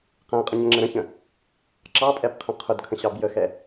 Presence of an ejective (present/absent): present